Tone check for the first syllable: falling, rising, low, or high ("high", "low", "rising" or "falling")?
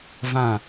falling